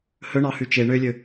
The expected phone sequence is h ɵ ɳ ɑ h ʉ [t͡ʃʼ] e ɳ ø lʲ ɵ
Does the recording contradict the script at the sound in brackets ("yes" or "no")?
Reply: yes